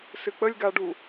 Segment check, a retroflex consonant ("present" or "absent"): present